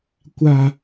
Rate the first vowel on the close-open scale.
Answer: open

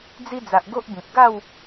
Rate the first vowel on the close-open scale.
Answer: close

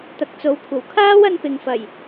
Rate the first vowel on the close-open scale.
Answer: open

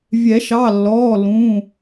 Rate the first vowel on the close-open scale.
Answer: mid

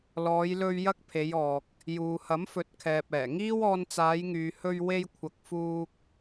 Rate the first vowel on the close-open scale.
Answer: mid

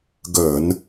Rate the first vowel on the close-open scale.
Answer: mid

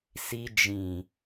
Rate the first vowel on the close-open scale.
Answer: close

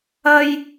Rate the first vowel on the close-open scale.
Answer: open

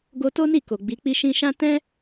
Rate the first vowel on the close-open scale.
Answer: mid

